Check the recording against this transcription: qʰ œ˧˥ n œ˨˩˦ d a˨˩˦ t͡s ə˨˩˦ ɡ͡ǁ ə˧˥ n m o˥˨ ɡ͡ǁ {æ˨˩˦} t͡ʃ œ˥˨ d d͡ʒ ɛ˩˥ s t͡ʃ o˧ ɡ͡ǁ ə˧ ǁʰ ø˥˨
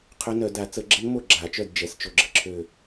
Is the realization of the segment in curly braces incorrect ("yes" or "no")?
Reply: yes